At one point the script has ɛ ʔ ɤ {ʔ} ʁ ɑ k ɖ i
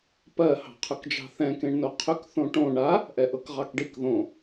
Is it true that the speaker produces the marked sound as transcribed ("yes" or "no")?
no